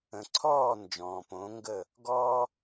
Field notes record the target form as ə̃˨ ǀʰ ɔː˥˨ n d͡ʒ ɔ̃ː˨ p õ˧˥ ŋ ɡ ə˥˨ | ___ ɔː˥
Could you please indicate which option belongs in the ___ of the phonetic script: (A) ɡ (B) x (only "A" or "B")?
A